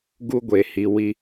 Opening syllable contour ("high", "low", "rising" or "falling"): high